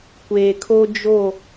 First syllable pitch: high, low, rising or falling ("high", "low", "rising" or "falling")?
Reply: low